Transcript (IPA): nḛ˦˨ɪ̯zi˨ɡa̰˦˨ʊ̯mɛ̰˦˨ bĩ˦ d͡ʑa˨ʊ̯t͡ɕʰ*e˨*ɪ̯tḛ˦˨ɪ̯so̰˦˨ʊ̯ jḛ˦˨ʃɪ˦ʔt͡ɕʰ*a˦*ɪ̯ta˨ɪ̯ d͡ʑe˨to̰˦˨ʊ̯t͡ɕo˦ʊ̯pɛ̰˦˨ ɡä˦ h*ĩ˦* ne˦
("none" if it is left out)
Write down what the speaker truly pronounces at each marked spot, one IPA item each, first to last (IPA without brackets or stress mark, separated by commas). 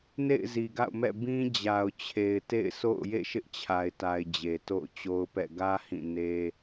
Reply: e˨, a˨, ĩ˦˨